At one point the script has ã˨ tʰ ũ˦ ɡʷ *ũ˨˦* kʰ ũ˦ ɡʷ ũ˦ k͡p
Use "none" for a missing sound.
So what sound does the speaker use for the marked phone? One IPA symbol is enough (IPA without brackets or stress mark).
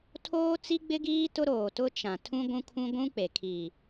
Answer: ũ˦